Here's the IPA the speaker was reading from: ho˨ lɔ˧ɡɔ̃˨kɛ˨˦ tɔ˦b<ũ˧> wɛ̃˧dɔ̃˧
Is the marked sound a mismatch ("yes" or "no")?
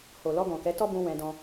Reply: no